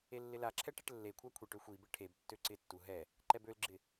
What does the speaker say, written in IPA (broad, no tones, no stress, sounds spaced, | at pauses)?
e lː ɪ l a ǁʰ ɛ ʈ ɛ ʈ lː e kʷʰ a kʷʰ e ʈ ø xʷ i b ɪ ʈʰ e b tː ø ǀ ɪ tː u ɦ ɛ | ǃ ɛ b ø l ɡ͡ǁ ɪ